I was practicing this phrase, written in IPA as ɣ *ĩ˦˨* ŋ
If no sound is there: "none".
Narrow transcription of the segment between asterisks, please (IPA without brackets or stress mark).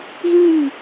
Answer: ĩ˦˨